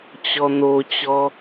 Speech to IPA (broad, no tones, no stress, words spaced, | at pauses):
t͡ɕɔn̪ot͡ɕɔ